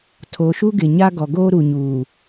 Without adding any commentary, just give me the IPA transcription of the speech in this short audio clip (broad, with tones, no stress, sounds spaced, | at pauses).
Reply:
tʰ oː˨ ʃ u˦ ɡ ɪ˨ ɲ a˦ ɡ ɔ˨ ɡ oː˦ ɾ u˨ ɲ uː˨